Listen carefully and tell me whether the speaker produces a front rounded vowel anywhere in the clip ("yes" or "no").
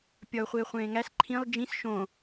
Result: no